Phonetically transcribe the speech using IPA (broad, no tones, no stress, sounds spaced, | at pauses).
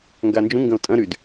ŋ ɡ a n d͡ʒ ũ ŋ ɡ ɐ̃ o̯ tʼ ɐ̃ ɾ y d